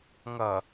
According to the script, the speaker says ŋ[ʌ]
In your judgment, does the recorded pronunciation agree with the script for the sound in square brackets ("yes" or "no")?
yes